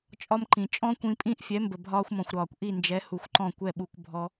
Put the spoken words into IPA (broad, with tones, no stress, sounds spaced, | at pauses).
t͡ʃʼ ɒ˧ m ǃ ĩ˩ t͡ʃʼ ɔ̃˥ kʷ ĩ˧ pʼ ĩ˥ ʔ fʲ ɛ˩˥ m b ə˩ bʱ ɒː˥ xʷ m ɔ̃˩ xʷ ɾ ɒː˩ kʷ ʔ i˥˩ n d͡ʒ ɛ˩˥ h u˩ xʷ ǃ ɔ̃˥˩ kʷ ɛ˥˩ ɓ u˧ k bʱ ɔ˧